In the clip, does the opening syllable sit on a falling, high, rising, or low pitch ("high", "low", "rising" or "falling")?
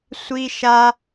high